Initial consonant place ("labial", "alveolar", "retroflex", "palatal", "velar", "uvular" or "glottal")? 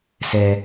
alveolar